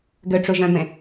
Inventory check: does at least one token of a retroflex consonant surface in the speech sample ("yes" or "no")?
yes